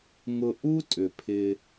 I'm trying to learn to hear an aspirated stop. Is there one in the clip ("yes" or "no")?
yes